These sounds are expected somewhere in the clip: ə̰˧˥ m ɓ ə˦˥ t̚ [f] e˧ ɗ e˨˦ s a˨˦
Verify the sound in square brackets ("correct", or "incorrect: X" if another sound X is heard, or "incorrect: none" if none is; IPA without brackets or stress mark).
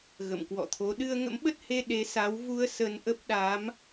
incorrect: h